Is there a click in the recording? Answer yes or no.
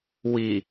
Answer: no